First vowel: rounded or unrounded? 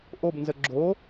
rounded